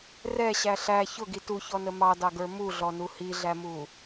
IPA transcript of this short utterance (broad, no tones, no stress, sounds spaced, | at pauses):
r ɛ ɕ æ ɬ æ ç ʊ ɡ i t u ç ɔ n ə m ɑ d ɑ ɡ ə˞ m u ɮ ɔ n u h i ɮ æ m u